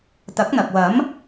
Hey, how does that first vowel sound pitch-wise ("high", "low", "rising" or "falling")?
rising